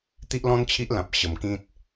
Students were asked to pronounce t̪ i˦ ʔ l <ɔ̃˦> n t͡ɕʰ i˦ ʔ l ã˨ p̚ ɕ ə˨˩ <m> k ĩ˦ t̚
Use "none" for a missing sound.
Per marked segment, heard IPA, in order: ɔ̃˦, m

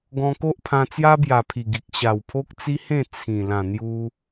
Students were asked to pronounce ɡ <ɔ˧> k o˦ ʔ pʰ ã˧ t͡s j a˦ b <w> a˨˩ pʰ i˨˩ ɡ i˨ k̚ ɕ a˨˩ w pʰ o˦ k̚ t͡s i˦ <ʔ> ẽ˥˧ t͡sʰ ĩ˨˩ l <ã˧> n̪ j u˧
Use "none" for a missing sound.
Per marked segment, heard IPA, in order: ɔ̃˧, j, h, ã˨˩

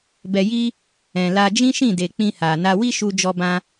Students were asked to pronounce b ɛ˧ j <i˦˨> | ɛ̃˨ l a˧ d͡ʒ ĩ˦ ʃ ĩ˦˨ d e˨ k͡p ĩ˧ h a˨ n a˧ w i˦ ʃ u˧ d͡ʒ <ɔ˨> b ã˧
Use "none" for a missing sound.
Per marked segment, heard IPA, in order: i˦, ɔ˧

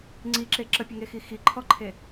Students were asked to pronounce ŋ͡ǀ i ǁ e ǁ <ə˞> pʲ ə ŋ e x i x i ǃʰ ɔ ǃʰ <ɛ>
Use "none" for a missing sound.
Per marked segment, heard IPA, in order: ə, e

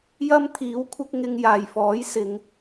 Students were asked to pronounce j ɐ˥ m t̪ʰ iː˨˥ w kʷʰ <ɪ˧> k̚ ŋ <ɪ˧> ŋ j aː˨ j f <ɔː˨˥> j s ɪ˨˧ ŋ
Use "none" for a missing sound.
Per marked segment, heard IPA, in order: ɪ˧, ɪ˧, ɔː˨˥

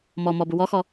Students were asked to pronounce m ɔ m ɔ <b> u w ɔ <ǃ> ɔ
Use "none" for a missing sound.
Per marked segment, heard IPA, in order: b, x

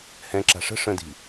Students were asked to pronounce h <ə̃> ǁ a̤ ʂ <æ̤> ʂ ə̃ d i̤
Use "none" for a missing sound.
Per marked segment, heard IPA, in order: ɛ̃, ə̤

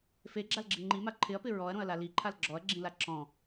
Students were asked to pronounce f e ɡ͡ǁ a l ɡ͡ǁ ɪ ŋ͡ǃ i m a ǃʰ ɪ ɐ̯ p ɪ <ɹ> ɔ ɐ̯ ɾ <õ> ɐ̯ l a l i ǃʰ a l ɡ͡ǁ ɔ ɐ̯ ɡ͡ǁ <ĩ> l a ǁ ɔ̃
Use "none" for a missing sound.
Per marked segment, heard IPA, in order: ɹ, õ, ĩ

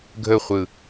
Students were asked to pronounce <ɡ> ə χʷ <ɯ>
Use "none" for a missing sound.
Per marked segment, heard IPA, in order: ɡʱ, ɯ

